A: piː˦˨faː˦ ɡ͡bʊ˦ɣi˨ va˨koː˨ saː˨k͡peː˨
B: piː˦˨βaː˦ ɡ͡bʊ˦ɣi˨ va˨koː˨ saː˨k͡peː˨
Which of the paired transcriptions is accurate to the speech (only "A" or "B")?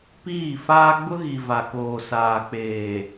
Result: A